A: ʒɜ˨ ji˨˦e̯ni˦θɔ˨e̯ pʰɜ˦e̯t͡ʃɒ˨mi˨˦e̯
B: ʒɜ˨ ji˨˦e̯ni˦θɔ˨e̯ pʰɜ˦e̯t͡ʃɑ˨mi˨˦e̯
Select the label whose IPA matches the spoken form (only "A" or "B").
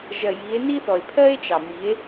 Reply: B